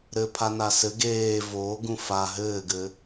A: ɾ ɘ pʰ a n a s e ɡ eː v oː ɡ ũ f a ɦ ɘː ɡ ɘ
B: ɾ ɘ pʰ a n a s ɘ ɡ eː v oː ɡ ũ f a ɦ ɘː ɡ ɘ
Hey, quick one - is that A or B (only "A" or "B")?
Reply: B